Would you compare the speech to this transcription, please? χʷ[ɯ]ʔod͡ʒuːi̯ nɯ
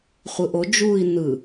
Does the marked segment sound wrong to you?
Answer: no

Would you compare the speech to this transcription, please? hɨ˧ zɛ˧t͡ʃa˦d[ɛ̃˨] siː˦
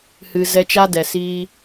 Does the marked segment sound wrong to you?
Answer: yes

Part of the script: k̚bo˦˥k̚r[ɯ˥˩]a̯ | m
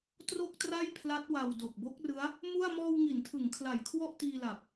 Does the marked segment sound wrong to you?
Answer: yes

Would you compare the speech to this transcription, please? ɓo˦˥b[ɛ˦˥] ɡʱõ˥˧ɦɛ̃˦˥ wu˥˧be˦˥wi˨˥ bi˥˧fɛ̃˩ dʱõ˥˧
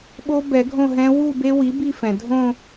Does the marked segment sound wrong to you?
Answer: yes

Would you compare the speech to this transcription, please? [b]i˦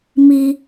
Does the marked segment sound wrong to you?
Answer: yes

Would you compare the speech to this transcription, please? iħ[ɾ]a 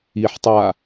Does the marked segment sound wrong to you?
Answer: yes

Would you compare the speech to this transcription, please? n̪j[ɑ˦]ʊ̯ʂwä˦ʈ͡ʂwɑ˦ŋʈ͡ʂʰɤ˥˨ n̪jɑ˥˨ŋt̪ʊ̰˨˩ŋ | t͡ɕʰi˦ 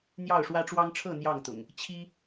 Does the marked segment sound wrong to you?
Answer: yes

